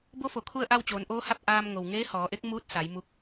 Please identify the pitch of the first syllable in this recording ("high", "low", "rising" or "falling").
rising